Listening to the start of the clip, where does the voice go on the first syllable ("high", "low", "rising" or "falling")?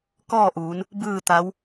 falling